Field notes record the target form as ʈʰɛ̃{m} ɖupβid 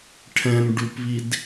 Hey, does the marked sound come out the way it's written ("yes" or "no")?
yes